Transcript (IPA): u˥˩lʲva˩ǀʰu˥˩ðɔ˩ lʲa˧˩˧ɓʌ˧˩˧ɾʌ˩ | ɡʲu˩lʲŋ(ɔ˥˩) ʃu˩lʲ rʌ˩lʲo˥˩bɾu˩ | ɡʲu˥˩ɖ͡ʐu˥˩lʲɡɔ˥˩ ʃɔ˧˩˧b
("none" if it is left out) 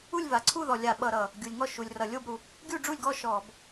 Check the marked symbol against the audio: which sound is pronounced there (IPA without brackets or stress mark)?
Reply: ɔ˥˩